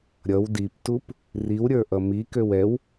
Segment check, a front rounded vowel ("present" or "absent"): present